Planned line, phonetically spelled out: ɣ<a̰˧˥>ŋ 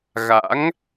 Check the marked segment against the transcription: correct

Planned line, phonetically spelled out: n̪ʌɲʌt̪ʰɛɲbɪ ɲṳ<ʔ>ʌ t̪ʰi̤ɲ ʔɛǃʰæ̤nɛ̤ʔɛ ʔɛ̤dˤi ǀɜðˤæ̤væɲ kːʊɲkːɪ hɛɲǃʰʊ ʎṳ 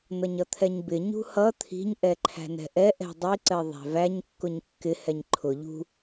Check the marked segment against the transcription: incorrect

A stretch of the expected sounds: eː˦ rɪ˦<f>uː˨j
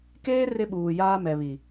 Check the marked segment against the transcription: incorrect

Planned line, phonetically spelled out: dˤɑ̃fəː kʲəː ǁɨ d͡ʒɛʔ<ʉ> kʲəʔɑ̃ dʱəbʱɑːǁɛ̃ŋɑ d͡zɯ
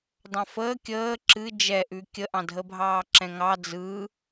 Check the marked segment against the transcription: correct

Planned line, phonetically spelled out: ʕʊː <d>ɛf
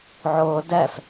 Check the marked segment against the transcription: correct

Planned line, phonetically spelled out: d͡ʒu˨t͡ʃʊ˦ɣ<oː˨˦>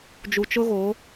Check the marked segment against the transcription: correct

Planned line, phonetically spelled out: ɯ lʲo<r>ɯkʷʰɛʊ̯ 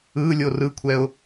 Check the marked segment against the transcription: correct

